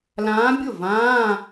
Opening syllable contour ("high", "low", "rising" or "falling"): rising